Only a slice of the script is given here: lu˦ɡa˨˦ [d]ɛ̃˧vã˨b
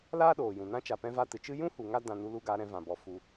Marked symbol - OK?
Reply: no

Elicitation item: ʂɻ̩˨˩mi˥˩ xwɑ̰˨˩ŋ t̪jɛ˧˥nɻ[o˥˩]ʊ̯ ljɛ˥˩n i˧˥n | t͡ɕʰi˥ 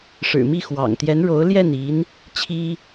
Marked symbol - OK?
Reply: no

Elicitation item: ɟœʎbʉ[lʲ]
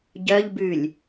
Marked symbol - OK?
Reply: yes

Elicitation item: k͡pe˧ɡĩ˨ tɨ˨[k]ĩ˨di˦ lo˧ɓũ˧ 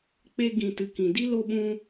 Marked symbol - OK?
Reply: yes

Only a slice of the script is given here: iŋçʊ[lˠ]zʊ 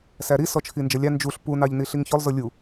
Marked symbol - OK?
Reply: yes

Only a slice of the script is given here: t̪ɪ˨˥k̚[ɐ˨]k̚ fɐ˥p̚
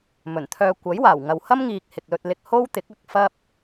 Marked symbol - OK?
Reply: yes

